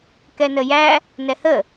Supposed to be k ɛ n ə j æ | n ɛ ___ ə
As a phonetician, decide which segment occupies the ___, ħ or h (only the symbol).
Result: h